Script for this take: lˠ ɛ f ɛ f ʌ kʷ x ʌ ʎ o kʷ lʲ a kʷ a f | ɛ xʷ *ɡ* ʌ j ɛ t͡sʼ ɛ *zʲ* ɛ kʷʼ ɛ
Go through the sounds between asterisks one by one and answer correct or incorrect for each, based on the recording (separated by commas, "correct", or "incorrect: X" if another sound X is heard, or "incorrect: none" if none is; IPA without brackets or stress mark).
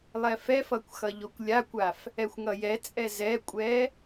incorrect: ŋ, incorrect: z